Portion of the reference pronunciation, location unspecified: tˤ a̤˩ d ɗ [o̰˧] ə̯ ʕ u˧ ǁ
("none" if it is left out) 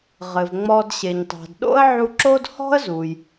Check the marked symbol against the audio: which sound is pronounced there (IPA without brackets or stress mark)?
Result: o̰˥